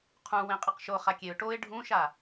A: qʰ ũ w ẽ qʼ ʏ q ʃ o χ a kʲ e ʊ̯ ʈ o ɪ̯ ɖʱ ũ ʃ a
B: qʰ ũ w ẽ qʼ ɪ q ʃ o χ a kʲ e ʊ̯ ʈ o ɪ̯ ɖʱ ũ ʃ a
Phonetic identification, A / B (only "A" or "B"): B